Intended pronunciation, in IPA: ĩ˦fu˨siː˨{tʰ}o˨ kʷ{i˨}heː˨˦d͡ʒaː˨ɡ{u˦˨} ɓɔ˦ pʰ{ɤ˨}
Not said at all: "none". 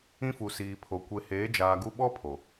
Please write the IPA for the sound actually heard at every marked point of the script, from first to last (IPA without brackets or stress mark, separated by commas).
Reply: pʰ, e˨, u˦, o˨